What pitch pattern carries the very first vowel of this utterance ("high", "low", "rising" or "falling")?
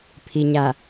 low